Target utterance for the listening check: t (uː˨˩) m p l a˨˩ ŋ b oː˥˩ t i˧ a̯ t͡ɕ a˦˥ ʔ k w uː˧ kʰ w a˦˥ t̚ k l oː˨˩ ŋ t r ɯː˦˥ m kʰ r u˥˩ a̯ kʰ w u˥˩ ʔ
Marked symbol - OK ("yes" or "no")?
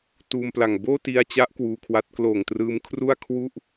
no